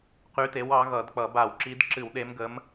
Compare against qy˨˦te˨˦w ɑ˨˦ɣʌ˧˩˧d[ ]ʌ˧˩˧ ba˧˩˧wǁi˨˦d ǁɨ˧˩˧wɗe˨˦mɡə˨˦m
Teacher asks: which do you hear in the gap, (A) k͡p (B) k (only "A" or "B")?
A